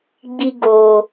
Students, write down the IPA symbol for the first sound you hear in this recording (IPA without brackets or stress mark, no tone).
ɡ͡b